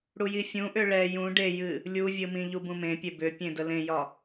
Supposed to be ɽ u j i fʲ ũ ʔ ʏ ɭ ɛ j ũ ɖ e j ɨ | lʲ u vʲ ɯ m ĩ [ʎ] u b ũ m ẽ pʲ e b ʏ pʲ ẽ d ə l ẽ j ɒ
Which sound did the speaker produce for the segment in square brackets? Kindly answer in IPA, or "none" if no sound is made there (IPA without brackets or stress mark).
ʎ